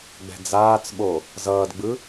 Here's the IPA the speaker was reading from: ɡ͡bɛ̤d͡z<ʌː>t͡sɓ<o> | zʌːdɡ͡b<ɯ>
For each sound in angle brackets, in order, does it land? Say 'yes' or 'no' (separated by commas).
no, yes, yes